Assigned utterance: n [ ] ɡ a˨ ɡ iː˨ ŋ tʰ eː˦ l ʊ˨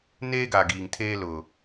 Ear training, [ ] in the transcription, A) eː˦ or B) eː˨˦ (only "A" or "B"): A